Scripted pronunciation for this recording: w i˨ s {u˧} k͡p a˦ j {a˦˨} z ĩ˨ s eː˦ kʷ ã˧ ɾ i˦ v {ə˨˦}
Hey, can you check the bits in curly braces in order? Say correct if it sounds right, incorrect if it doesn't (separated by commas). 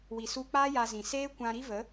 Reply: correct, incorrect, correct